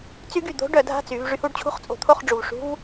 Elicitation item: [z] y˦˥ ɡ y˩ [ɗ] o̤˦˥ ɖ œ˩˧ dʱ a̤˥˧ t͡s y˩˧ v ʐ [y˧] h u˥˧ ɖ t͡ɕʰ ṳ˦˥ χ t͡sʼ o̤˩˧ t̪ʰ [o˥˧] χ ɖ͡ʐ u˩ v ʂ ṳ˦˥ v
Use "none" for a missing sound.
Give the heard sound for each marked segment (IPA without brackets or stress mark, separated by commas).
t͡s, d̪, y˧, o˥˧